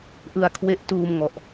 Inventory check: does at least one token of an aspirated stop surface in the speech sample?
yes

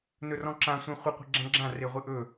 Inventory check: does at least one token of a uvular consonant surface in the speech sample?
yes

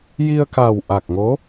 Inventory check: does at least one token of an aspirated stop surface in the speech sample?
no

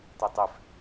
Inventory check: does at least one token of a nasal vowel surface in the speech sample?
no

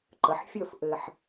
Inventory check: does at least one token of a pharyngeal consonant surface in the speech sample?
yes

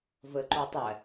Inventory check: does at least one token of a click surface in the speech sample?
yes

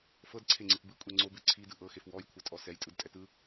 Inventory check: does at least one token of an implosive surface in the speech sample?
no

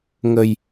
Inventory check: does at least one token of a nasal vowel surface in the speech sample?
no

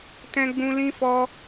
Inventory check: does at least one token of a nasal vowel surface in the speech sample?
yes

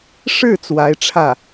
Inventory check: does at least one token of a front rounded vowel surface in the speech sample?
no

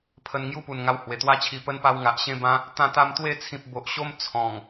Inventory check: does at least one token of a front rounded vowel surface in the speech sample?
no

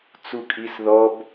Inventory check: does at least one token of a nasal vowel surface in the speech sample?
no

